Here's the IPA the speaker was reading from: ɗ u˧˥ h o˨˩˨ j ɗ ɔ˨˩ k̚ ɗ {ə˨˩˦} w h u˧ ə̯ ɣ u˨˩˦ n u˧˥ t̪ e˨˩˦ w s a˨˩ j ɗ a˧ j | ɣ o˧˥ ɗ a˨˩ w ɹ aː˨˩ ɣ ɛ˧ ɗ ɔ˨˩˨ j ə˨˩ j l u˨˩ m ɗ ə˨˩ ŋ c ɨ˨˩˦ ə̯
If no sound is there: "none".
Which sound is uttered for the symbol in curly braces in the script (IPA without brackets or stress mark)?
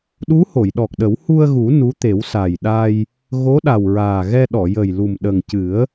ə˨˩˦